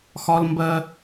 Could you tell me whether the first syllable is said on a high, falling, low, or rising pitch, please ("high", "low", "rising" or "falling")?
high